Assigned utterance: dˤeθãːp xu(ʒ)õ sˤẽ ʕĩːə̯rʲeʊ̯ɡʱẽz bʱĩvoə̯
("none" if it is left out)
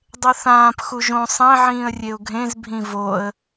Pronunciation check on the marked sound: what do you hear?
ʒ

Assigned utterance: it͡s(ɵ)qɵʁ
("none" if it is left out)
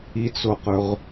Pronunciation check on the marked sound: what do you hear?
o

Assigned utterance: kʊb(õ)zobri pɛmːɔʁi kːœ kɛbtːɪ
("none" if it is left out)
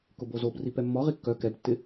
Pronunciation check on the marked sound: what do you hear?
o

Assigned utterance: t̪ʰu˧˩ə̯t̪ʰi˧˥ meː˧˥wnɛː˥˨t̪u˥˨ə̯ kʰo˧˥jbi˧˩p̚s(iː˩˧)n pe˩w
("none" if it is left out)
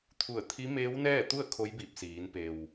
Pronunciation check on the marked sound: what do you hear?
iː˩˧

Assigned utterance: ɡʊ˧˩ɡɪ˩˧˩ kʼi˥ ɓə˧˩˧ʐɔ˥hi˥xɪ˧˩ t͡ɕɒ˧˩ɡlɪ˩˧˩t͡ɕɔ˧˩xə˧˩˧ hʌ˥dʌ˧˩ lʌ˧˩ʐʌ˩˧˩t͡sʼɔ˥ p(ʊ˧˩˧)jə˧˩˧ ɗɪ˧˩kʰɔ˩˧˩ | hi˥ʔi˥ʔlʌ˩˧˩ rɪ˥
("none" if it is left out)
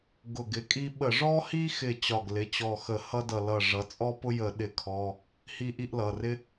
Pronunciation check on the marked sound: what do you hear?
ʊ˥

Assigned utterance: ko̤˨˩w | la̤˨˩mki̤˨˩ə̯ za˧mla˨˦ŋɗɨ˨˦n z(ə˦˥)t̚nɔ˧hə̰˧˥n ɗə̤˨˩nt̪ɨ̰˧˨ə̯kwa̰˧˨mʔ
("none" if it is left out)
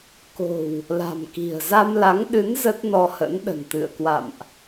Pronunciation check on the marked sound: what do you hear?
ə˦˥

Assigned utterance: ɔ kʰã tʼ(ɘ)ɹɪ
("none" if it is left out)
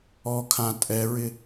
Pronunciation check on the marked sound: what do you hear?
ɛ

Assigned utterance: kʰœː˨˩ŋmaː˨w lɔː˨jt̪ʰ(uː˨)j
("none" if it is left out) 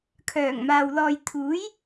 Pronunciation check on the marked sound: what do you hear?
uː˨˥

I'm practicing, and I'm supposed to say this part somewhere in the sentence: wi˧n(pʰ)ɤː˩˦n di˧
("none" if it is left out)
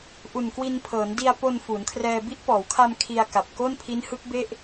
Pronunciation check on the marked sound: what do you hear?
pʰ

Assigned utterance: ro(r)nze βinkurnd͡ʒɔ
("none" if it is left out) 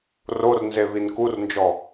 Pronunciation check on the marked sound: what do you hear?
r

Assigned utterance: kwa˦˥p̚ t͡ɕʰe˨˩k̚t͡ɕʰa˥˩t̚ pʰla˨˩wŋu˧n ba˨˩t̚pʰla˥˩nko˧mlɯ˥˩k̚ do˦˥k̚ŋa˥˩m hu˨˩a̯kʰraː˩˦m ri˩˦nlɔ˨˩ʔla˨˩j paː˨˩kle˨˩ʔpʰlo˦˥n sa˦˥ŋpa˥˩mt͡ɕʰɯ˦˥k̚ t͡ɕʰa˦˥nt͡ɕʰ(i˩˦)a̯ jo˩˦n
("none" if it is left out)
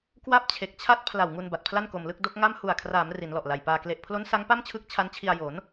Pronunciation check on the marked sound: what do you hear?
i˧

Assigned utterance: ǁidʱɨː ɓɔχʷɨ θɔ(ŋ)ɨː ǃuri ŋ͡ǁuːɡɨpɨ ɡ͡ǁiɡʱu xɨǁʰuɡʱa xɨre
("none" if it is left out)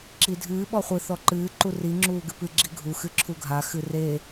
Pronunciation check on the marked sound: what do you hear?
ǃ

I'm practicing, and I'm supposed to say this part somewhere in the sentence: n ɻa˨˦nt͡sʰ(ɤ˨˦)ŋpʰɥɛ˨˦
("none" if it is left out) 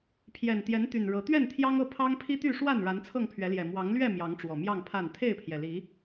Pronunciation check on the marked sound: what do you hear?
ɤ˥˨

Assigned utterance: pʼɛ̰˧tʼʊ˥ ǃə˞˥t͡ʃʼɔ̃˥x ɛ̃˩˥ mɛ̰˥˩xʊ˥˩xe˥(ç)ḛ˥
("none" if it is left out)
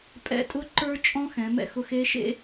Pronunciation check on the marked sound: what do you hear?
ʃ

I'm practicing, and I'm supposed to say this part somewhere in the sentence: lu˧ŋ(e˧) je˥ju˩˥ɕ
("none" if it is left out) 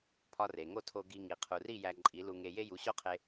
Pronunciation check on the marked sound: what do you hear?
e˧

